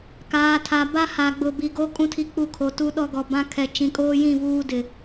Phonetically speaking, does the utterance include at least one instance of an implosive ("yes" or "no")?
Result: yes